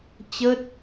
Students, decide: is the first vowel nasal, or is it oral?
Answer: oral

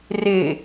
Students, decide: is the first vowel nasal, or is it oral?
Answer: oral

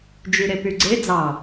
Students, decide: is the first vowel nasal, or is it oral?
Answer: oral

